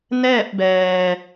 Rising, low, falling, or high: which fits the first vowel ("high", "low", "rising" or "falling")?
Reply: falling